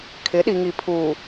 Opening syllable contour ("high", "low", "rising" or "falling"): rising